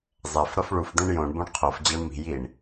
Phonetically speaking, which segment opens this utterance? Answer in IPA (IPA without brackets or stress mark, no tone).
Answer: zˤ